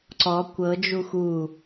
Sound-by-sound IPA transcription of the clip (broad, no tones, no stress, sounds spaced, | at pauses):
ǀ ɔ kʷ ɤ d͡ʒ u x u